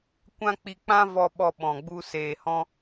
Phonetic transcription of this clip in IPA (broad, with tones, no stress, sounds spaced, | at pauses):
kʷ ã˦ k͡p i˧ k͡p ã˦ v ɔ˧ ɓ ɔ˧ ɓ ɔ̃˨ ɡ͡b u˧ s eː˨ h ɔ̃˧